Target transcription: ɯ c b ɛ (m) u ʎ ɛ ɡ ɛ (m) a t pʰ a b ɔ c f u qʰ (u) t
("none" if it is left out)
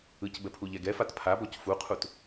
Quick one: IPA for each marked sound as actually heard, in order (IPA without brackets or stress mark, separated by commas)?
pʰ, f, u